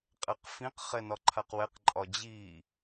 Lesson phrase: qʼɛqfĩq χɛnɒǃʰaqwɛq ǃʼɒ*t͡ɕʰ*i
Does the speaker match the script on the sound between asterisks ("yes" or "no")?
no